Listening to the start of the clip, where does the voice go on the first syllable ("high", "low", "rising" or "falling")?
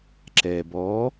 low